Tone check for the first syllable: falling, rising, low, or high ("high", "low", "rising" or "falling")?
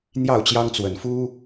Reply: falling